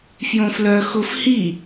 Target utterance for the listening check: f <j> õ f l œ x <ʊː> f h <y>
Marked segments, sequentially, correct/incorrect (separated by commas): correct, incorrect, incorrect